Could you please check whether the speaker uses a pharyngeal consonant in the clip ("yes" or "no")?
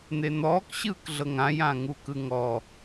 no